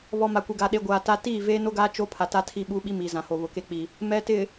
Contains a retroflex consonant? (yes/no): no